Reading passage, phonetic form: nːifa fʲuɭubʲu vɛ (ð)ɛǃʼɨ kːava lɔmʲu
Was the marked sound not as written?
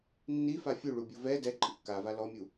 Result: yes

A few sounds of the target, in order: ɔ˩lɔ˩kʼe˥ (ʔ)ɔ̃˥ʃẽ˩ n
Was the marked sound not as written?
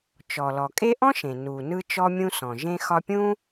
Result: no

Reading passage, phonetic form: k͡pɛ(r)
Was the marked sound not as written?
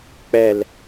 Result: yes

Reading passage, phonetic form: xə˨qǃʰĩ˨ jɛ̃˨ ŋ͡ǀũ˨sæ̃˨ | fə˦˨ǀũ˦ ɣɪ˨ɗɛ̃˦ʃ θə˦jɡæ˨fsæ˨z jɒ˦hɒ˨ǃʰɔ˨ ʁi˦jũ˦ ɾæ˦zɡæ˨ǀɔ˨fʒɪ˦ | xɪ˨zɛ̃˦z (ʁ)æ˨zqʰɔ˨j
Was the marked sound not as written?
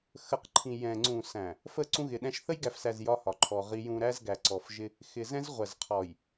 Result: yes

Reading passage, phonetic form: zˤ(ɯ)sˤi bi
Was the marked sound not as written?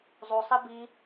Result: yes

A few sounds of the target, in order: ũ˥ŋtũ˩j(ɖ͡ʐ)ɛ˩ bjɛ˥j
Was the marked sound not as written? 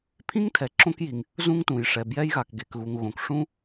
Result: yes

